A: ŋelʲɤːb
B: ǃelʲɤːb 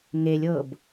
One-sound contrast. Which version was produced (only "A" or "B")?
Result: A